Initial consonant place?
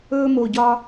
labial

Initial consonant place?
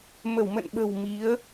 labial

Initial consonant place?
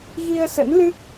velar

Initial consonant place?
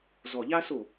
alveolar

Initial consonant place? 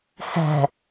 glottal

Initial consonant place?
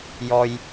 palatal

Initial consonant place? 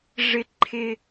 retroflex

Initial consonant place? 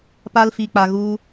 labial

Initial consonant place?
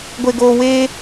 velar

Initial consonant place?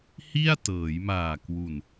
glottal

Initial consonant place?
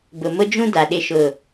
labial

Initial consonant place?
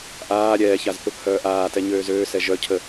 glottal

